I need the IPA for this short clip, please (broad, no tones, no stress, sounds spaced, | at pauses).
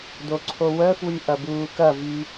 d o ǀʰ o w œ f w y ʔ ɐ b uː k ɐ v y